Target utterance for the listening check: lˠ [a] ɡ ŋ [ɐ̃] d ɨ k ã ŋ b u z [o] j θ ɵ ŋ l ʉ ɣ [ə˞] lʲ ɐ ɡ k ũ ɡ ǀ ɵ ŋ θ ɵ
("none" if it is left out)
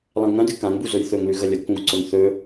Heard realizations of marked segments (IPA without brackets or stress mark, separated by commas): ã, ɐ̃, ɵ, ɐ